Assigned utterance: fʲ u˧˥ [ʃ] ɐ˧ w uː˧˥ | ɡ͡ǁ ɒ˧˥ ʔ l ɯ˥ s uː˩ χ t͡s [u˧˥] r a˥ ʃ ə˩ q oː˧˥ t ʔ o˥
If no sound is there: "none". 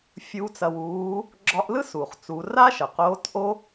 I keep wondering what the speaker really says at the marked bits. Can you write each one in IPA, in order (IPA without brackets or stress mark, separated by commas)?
t͡s, u˩˧